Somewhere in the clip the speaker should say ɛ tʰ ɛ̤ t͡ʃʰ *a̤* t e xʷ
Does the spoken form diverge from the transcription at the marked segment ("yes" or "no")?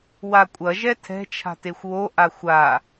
no